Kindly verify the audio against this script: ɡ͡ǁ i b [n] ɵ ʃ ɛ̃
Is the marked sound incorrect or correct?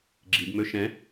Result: incorrect